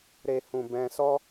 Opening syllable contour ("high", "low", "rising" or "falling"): low